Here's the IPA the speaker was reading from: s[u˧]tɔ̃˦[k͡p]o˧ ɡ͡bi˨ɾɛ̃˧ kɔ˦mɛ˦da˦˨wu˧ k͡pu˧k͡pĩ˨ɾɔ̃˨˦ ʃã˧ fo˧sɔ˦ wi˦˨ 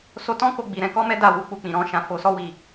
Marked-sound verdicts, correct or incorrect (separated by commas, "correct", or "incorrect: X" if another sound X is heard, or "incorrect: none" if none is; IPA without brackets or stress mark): incorrect: o˧, incorrect: k